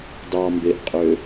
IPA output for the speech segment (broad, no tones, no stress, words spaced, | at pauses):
dɑmbeʔqʼø